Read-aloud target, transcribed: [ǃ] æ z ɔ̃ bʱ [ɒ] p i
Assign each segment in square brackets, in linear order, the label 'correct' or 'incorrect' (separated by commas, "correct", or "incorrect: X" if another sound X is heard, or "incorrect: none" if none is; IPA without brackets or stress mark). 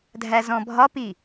incorrect: dʱ, correct